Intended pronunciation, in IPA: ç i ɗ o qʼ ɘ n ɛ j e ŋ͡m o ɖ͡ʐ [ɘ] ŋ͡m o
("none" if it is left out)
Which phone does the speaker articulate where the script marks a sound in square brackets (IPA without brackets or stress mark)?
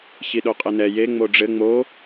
ɘ